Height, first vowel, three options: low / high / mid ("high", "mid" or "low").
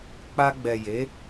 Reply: low